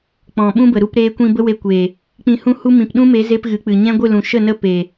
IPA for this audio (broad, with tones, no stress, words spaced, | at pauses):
k͡pɔ̃˨ɓũ˦bə˨ ɾu˧pɾeː˧kʷĩ˧ bə˦we˧kʷeː˨ | k͡pĩ˧hũ˦hu˦ mĩ˨pɗũ˦me˨˦ ze˦pɣɨ˨˦k͡pɨ˨ ɲɛ̃˦ɡʷɨ˦˨lũ˨ ʃə˦˨ nə˦pe˨